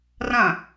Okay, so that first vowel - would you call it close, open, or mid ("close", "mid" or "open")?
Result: open